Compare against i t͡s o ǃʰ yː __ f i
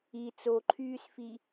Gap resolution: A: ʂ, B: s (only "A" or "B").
B